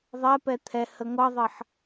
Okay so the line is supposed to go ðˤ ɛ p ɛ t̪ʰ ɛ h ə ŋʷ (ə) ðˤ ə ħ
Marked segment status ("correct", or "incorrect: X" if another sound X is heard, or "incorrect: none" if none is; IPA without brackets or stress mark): incorrect: ɑ